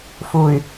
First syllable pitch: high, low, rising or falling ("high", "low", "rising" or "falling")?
low